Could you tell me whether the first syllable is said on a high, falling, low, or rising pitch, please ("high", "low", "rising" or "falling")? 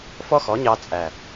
high